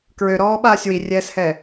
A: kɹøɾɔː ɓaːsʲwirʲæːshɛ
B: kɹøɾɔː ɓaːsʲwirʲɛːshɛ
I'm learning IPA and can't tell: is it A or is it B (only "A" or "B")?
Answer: B